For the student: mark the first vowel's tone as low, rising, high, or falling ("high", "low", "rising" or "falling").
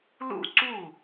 falling